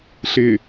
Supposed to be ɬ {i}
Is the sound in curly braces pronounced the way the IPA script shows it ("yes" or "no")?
no